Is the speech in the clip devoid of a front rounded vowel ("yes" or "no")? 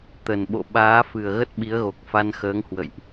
yes